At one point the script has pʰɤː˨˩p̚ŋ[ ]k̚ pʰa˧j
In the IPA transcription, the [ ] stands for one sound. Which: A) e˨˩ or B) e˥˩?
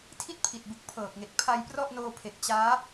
A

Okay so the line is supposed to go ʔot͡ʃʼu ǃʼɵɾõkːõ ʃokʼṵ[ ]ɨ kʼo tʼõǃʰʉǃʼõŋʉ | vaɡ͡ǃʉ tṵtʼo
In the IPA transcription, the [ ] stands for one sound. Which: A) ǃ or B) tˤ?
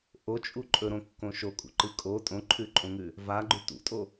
A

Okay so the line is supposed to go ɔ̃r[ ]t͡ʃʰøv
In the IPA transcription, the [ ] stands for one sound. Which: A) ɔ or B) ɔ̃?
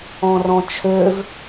B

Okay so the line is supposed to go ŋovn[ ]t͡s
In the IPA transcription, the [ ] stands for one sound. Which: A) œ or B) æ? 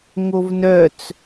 A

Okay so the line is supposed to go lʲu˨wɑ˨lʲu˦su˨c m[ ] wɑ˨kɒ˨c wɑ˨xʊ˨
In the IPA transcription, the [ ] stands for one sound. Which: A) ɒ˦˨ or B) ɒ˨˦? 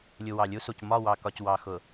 A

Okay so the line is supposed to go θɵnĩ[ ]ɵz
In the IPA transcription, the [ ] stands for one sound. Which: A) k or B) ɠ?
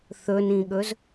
B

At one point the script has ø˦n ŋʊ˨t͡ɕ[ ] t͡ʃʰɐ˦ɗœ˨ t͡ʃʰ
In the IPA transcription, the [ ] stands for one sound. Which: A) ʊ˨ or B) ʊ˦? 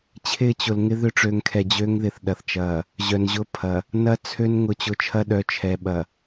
A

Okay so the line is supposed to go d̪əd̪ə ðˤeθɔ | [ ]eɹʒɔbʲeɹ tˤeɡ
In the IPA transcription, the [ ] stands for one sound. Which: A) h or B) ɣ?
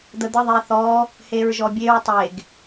A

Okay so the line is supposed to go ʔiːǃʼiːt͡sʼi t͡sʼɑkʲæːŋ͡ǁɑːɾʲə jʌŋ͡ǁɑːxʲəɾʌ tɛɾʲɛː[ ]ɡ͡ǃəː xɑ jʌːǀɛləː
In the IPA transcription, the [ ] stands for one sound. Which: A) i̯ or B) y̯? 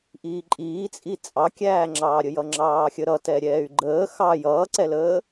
B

